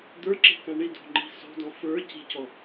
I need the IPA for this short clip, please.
d̪ ə˞ ǁ e̤ k ã ɳ i d o̤ ŋ͡ǃ i̤ s o̤ d ɔ̃ f ə˞ c i̤ c ɔ

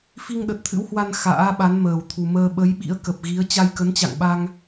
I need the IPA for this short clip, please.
f i˧ ŋ ɗ ə˨˩ t̚ t̪ʰ ɨ̰˧˥ w h w a˧ n x a̰ː˧˥ ɓ a˨˦ n m əː˨˩ w t̪ʰ u˨˩ m əː˧ ɓ ə˨˦ j ɓ ḭ˧˥ ə̯ k ə˨˩ p̚ ɣ i˨˦ ə̯ t͡ɕ a˧ j k ə˨˦ n t͡ɕ a̰˧˨ ŋ ɓ a˧ ŋ

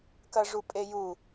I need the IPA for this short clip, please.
k ɐ ʐ u pʼ e j u

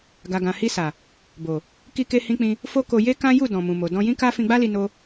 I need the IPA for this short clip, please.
ɡ a˨ ɡ ã˨ h i˧ s a˨ | b o˨ | k i˧ k e˧ h ĩ˧ k͡p ĩ˧ | f o˦ k o˧ j e˦ k ã˦ j u˦˨ d ɔ̃˨ m ũ˨ m o˨ d ɔ̃˧ j ĩ˦ k a˦ f ĩ˧ ɡ͡b a˦ l i˧ n o˦

